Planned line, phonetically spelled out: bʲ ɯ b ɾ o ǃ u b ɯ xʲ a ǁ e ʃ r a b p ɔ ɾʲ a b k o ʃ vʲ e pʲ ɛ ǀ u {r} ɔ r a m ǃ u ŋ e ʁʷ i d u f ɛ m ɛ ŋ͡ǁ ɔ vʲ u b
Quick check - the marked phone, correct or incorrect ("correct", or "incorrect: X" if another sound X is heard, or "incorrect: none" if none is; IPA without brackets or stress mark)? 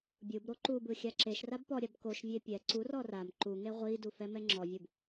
correct